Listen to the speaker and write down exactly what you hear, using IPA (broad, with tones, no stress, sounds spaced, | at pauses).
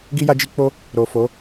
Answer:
ɡ i˦ j a˦ d͡ʒ i˦ k͡p o˦ | ɾ o˨ f o˨˦